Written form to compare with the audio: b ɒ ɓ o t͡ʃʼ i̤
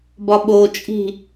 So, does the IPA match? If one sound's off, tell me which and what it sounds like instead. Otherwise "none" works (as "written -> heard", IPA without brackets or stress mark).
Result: none